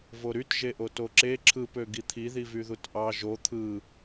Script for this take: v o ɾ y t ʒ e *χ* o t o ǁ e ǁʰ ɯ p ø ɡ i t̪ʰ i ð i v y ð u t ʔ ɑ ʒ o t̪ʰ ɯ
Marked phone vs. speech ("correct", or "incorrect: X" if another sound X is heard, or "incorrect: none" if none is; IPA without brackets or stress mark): incorrect: ʔ